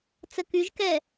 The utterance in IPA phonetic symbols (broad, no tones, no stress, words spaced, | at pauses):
t͡səkyʒkɛ